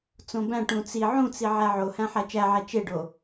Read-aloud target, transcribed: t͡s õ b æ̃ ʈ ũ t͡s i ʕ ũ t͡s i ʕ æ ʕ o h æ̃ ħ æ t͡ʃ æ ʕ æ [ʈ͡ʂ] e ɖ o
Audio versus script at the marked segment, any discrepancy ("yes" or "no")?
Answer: yes